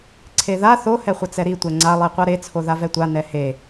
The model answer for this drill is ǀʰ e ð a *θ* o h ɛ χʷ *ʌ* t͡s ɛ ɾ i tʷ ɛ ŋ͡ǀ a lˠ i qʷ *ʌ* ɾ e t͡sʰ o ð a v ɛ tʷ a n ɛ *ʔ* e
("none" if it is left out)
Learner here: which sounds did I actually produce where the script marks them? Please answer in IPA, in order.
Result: θ, ʌ, a, h

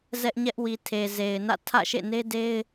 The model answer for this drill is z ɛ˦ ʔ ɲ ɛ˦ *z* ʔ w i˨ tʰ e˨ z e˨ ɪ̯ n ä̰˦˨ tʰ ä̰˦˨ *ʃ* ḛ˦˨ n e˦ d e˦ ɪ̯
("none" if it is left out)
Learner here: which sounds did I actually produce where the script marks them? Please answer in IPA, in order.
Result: none, ʃ

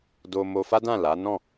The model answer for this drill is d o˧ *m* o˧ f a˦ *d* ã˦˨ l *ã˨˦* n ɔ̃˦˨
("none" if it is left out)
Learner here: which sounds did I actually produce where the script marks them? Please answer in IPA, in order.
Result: m, d, a˨˦

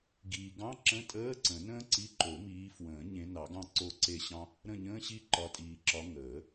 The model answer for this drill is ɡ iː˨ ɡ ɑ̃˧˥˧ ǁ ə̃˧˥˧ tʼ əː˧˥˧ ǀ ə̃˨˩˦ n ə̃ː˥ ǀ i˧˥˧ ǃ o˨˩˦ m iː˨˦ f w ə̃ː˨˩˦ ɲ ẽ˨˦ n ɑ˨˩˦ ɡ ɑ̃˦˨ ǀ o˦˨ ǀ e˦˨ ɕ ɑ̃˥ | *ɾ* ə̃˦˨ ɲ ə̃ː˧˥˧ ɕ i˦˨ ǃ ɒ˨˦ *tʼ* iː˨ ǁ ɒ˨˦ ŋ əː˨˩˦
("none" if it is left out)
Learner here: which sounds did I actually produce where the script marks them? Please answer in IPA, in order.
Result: ɾ, tʼ

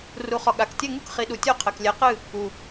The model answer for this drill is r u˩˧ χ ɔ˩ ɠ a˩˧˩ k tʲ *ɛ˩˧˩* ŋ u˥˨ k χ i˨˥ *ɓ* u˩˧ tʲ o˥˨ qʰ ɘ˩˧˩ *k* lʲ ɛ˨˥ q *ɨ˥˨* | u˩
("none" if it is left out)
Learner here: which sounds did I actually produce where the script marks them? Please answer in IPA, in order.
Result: ɛ˥˨, ɗ, k, ɨ˥˨

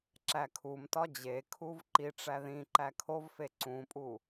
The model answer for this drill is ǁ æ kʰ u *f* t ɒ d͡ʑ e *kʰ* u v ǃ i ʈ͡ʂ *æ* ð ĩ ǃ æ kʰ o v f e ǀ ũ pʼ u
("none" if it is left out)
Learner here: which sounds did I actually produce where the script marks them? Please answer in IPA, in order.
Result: m, kʰ, æ

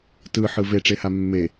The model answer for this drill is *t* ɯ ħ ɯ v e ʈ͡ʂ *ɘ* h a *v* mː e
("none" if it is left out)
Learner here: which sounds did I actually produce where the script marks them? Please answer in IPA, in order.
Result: t, e, none

